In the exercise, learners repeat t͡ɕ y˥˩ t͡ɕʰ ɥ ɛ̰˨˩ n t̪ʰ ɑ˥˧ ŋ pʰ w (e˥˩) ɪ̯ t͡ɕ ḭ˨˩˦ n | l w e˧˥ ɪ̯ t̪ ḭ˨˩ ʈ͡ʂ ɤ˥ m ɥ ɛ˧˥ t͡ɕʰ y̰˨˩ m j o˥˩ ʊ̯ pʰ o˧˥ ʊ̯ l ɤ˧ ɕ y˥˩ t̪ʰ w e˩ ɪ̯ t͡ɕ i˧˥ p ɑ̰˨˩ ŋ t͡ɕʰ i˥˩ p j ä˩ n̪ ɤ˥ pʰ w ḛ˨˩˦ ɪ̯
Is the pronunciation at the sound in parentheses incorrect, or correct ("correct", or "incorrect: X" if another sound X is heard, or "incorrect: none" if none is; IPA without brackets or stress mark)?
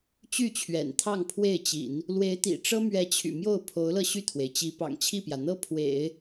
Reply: correct